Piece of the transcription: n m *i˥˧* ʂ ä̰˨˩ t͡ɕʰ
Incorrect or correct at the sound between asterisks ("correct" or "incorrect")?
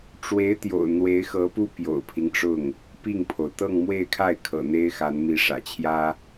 incorrect